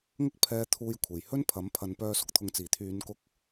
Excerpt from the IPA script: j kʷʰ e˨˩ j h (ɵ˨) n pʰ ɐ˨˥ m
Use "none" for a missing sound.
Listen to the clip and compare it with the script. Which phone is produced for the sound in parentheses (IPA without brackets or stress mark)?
ɵ˥